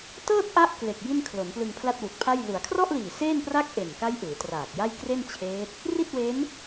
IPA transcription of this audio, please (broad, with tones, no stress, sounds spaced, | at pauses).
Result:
t ɤː˥˩ t̚ ʔ a˥˩ ʔ k l e˨˩ k̚ j i˥˩ n kʰ l o˩˦ n p l ɯ˧ ŋ pʰ l a˥˩ t̚ w u˨˩ k̚ pʰ a˥˩ j l u˩˦ a̯ kʰ r ɔ˥˩ ʔ l iː˨˩ s eː˥˩ n p r a˥˩ k̚ ʔ e˨˩ n k a˦˥ j ʔ ɯː˩˦ t r aː˨˩ k̚ j a˥˩ j k r e˥˩ n t͡ɕʰ eː˦˥ t̚ | r i˥˩ t̚ w e˦˥ n